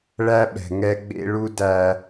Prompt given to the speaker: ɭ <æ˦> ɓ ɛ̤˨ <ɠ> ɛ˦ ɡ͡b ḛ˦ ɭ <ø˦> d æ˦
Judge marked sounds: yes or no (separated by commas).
yes, no, no